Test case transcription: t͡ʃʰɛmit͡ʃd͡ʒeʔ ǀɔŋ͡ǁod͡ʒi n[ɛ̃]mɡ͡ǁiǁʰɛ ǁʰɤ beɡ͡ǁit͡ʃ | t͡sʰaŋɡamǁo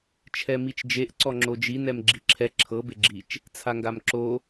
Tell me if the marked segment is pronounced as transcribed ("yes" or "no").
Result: no